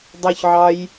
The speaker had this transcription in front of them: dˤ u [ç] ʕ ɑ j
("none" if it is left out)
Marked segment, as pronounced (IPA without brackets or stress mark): ç